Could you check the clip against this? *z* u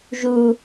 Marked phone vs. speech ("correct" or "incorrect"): incorrect